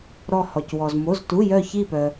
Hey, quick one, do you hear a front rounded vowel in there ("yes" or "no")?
yes